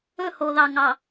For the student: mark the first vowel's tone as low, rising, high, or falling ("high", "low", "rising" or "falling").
falling